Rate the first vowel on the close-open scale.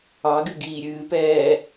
open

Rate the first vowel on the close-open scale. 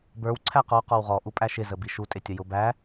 mid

